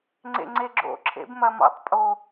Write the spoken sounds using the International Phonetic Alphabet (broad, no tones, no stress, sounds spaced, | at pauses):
ŋ͡ǀ ḛ ŋ͡ǀ e ɡ͡ǁ o̰ ǁʰ ḛ b m ɐ m ɔ̰ tˤ pʼ o